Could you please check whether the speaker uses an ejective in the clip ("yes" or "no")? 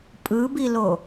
yes